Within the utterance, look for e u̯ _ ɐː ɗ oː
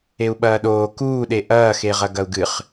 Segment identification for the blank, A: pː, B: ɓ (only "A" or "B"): B